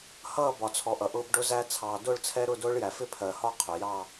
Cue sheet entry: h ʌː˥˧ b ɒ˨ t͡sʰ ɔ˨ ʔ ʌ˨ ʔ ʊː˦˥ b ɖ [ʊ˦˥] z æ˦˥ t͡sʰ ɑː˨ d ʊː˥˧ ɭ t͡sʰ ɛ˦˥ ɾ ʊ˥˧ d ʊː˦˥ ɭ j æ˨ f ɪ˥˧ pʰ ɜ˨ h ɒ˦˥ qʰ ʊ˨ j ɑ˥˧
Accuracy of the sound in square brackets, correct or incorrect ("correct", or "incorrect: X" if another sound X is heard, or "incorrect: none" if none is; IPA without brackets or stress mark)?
correct